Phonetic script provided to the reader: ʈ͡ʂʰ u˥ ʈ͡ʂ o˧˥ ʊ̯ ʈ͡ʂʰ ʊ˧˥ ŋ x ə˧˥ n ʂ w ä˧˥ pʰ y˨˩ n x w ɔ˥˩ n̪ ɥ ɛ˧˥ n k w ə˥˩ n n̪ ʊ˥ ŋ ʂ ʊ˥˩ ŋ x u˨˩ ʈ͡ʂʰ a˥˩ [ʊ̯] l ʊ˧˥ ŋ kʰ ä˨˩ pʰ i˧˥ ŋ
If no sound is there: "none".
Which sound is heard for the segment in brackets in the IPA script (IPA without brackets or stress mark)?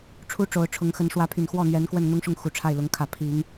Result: ɪ̯